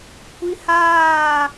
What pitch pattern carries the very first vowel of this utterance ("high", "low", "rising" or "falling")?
high